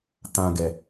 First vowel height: low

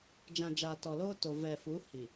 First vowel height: low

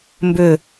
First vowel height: high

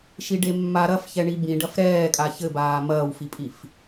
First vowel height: high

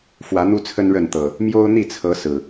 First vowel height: low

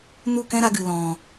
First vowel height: high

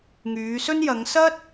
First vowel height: high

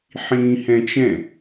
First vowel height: high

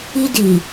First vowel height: high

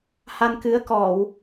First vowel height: low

